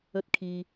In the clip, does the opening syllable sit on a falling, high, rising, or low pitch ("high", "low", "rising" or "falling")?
high